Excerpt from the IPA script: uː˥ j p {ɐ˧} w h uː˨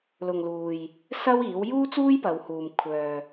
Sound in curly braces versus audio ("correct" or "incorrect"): incorrect